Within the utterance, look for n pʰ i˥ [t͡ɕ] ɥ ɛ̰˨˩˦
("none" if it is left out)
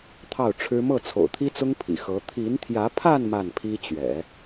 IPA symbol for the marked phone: t͡ɕ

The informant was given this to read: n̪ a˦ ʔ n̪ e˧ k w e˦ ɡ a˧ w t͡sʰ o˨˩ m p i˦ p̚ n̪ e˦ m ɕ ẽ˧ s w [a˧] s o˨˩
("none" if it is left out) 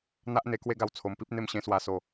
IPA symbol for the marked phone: a˧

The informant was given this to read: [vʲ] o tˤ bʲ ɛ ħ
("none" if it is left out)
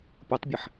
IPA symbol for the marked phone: pʲ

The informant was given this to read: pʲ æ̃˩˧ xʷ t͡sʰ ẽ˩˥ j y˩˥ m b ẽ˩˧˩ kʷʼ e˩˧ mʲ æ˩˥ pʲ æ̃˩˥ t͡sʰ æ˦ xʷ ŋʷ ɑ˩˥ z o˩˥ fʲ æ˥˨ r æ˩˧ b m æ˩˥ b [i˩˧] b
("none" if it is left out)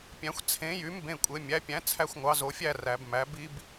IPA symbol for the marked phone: i˦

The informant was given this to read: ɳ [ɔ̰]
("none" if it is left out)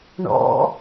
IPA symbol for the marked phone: ɔ̰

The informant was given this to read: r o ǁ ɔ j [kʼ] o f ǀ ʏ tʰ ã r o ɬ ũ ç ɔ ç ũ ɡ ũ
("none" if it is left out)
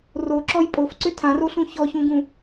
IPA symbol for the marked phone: pʼ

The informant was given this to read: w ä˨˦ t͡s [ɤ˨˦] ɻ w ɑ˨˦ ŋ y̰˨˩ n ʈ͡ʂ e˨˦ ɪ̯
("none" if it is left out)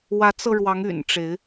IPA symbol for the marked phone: ɤ˧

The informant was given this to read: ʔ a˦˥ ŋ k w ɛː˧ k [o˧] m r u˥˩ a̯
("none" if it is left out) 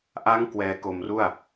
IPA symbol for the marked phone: o˧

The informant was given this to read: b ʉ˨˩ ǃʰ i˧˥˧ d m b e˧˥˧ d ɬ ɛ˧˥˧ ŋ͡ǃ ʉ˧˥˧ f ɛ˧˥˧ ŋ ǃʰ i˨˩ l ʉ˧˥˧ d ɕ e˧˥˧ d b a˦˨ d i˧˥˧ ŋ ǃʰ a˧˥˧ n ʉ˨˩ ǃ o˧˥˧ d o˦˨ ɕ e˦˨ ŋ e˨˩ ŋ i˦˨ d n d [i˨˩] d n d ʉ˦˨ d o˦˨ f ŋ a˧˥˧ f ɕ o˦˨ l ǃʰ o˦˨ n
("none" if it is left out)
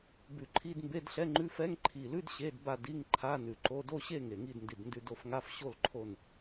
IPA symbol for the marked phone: i˨˩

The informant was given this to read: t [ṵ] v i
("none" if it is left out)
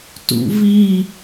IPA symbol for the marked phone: ṵ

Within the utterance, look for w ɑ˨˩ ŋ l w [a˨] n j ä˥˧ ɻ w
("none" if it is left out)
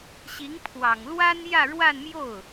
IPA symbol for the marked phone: a˥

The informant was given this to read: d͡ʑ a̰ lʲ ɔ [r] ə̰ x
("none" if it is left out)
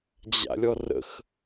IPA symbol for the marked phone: r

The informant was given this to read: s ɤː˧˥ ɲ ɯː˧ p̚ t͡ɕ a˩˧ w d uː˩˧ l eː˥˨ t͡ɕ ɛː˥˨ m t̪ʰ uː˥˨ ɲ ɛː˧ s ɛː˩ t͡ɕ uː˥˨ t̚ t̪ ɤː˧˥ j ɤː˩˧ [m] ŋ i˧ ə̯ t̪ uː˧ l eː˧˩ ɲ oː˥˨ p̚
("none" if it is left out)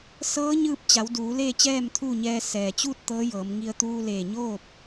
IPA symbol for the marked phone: m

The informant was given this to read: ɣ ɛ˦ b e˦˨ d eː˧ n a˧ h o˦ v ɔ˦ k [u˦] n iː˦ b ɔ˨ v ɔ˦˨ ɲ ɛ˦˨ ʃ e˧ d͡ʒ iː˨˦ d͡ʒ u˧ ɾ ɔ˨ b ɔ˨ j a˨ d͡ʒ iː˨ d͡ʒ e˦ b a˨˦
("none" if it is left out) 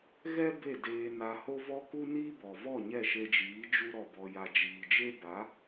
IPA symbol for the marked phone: u˦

